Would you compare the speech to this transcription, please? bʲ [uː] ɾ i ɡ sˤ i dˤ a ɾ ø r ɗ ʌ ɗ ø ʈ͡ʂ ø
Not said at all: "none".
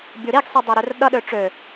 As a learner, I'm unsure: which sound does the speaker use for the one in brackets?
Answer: u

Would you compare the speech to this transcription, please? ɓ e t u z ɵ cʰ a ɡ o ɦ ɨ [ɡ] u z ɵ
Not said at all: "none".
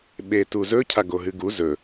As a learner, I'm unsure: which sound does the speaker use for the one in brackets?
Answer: ɡ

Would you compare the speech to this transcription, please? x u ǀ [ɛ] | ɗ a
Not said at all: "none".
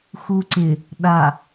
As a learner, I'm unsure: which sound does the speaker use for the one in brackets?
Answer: ɪ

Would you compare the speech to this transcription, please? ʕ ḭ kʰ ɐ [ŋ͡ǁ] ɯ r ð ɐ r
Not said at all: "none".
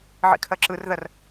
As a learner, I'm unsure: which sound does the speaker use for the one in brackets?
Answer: ǁ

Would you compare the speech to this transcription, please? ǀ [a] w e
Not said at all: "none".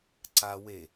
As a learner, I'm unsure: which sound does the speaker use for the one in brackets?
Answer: a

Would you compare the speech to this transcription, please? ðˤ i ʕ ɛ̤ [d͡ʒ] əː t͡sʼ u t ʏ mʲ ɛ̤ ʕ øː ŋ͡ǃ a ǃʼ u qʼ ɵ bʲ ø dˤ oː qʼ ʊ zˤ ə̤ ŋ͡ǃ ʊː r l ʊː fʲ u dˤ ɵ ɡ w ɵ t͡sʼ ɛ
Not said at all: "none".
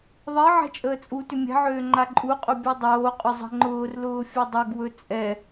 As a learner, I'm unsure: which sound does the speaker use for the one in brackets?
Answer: t͡ʃʼ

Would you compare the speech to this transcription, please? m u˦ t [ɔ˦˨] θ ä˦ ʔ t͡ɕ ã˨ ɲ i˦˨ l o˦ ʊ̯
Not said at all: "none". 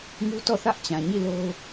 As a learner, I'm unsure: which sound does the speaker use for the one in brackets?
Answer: ɔ˦˨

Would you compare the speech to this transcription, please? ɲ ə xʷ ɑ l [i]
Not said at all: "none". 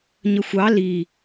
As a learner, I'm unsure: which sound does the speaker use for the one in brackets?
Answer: i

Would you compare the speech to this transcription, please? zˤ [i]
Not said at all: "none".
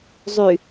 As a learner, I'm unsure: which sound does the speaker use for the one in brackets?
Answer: y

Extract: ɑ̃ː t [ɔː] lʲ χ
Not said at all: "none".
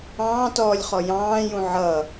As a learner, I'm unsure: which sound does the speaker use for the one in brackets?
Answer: ɔː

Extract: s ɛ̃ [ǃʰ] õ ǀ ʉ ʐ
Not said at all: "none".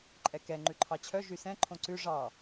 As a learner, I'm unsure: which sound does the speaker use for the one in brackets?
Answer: ǃʰ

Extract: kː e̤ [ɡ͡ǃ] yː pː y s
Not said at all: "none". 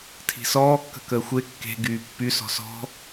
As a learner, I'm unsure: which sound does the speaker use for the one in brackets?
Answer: ɡ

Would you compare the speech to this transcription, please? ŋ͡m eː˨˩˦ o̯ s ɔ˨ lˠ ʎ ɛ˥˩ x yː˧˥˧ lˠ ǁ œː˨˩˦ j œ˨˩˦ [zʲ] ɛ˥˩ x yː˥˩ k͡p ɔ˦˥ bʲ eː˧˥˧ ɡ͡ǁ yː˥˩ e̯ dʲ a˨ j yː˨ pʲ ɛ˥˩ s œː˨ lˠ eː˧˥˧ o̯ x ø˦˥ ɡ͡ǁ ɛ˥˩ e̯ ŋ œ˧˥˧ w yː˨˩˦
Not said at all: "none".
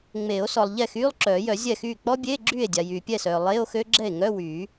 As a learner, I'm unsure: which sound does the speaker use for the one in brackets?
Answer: zʲ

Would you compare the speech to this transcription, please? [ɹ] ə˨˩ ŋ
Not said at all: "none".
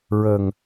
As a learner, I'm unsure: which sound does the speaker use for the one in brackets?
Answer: ɹ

